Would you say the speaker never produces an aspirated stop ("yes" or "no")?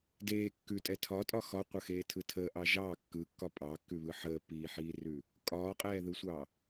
no